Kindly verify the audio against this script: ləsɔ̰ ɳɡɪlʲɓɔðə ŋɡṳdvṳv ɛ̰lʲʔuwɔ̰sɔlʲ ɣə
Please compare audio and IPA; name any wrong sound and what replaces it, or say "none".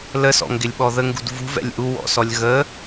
ɳ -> ŋ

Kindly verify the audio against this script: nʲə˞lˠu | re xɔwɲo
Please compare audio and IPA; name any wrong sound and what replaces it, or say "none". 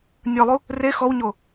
none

